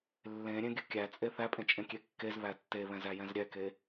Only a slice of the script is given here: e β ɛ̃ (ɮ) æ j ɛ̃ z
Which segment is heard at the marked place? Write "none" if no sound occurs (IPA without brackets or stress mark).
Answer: z